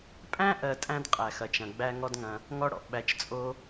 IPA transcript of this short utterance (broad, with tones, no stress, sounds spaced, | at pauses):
pʼ æ̃˥ ʔ ɜ˩ tʼ æ̃˥ d qʼ æ˩ x ɐ˩ t͡ʃ ɐ̃˩ ɡ͡b æ˧ ŋ ɔ˧ d ŋ ɐ̃˩ | ŋ ɔ˧ ɽ ɔ̰˩ ɓ æ˩ t͡ʃ t͡sʼ o˧